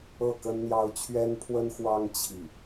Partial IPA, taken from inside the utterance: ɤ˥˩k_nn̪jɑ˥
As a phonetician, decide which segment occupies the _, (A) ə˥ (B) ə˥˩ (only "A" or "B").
A